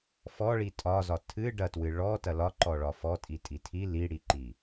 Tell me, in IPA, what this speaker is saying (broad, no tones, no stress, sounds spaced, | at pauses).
f ɔ ɭ i tʼ ɒ z ɒ tʰ ɨ ɖ ɐ t w ɨ ɭ ɔ t ɐ l ɒ ǃ ɔ ɭ ɒ f ɔ tʼ i tʼ i tʰ i l i ɽ i ǃ i